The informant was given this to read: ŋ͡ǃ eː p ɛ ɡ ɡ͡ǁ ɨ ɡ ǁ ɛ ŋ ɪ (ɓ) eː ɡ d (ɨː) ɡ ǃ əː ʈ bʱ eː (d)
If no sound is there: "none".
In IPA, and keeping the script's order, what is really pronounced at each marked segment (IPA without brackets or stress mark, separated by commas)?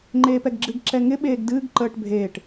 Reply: ɓ, ɨː, ʈ